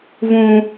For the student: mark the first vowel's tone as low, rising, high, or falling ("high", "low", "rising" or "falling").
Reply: high